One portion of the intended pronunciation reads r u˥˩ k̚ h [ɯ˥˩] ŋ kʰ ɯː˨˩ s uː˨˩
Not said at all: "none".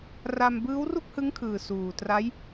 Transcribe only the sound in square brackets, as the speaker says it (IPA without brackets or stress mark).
ɯ˦˥